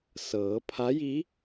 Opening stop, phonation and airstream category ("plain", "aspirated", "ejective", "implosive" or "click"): aspirated